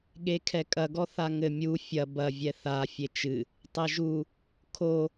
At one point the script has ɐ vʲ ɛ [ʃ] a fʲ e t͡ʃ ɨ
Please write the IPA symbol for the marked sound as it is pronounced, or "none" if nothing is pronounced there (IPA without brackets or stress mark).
θ